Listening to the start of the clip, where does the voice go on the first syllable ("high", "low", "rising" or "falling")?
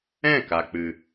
falling